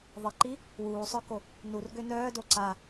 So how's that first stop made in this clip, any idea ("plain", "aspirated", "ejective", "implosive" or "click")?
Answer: click